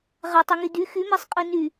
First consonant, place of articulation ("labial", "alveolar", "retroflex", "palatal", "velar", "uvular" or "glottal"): uvular